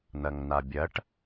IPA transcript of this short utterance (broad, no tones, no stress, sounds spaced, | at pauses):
n̪ ɐ ŋ n̪ a bʲ ɐ ʈ